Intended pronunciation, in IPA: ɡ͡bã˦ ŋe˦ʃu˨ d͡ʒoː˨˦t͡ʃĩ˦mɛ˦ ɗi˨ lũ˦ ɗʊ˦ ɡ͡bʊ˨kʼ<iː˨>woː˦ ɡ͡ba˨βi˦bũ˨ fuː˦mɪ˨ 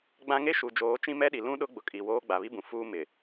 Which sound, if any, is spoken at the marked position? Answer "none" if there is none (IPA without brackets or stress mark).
i˨